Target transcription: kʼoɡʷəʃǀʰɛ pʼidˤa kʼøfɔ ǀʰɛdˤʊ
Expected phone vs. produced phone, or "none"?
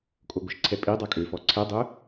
none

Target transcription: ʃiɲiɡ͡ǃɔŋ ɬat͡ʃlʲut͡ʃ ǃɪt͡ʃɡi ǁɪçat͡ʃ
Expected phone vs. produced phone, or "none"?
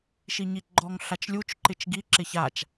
none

